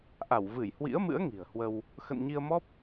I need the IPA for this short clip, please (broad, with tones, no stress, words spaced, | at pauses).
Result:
ʔa˧˩wvɨ˧˩jhwḭ˧˥ə̯mɨ̰˧˥ə̯ ŋi̤˨˩ə̯hwə˧w | xə̰˧˨nɲi˧ə̯mɔ˦˥p̚